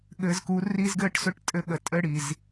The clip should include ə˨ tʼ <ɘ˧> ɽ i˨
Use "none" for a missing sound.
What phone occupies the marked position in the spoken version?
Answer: ɘ˧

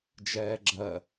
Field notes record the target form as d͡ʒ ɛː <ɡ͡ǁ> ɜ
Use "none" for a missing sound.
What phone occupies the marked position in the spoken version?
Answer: ɡ͡ǁ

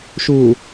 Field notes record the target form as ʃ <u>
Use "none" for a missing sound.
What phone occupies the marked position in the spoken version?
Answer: u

